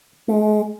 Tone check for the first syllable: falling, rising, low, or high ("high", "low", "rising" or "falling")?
high